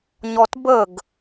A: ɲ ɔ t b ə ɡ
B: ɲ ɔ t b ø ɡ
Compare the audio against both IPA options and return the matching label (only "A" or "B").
A